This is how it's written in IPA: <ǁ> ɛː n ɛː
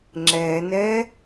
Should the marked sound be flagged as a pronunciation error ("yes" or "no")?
yes